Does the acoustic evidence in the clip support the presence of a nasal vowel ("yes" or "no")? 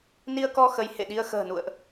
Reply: no